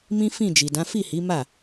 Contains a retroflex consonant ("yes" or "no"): no